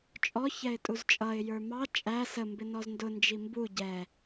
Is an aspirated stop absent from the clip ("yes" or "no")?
yes